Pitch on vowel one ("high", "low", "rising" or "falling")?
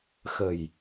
low